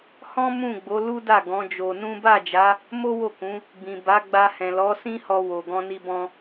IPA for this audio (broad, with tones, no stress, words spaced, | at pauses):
hɔ̃˦ mũ˦˨ɡ͡bo˨˦ lu˦da˦˨ ɡɔ̃˨˦d͡ʒo˧nũ˦ ba˦˨d͡ʒa˨˦ | mo˦wo˦˨kũ˨˦ | bĩ˨ba˨˦ɡ͡ba˧ hɛ̃˨lɔ˨˦ sĩ˦hɔ˧ wo˨ ɡɔ̃˧ni˧bɔ̃˧